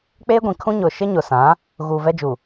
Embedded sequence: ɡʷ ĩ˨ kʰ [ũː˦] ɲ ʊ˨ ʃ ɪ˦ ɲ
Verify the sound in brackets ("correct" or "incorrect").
incorrect